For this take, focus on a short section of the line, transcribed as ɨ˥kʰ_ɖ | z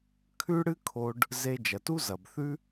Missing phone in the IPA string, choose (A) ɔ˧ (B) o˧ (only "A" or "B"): B